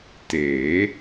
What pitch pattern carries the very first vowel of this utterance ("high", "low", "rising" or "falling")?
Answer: rising